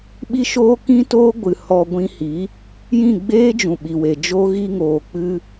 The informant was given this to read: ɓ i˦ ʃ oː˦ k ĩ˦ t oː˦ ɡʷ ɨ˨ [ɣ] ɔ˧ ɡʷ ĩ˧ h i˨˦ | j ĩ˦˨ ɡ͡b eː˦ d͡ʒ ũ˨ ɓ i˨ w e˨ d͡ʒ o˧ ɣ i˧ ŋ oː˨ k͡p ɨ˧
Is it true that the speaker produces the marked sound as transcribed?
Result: no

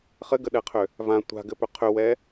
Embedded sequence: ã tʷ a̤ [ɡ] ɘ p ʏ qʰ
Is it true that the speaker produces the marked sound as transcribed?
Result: yes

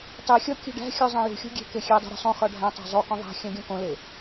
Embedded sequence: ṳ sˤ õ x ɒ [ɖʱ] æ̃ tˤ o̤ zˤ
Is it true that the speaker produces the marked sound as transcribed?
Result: yes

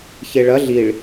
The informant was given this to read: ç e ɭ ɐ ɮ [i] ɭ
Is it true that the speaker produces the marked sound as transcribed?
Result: yes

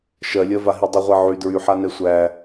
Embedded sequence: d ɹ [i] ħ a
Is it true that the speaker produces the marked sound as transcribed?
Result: no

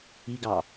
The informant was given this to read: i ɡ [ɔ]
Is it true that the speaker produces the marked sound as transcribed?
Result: no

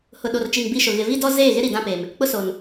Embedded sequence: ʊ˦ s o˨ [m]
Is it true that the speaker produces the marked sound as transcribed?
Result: no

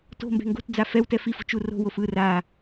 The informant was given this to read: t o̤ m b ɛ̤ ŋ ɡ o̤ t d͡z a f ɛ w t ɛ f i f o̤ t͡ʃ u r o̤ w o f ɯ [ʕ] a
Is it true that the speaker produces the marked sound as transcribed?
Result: no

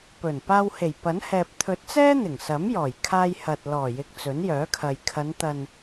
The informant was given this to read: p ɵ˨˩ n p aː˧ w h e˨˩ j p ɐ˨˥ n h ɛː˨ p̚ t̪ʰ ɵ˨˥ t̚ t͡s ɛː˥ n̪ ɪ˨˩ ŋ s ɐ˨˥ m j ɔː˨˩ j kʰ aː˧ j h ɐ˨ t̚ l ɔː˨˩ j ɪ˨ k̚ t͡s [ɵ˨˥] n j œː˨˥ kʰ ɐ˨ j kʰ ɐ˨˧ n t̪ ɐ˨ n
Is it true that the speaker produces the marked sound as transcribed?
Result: yes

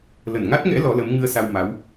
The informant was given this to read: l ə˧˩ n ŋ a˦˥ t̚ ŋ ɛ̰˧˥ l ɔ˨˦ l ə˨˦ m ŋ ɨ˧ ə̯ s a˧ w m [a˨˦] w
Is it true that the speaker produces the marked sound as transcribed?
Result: yes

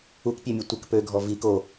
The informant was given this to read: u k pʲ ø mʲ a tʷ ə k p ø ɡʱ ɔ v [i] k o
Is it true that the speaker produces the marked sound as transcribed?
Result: yes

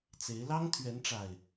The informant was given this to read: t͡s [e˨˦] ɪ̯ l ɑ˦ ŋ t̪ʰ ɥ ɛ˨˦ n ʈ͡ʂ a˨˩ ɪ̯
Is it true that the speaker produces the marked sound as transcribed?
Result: yes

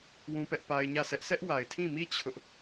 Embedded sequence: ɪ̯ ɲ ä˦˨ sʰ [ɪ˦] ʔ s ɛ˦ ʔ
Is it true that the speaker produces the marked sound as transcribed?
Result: no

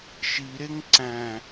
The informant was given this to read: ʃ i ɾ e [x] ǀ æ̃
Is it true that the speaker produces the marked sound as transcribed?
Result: no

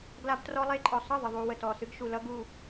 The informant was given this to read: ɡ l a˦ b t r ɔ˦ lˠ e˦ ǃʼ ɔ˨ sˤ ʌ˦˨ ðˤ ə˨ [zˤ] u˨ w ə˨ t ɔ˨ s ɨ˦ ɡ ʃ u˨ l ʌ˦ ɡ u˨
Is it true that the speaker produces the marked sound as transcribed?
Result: no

